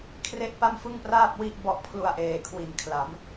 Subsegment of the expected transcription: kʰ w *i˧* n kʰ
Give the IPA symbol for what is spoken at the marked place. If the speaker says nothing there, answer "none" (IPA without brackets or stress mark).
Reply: i˨˩